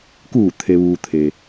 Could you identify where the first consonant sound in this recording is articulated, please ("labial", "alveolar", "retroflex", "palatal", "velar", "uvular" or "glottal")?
velar